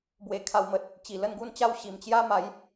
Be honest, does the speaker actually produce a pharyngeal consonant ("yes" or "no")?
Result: no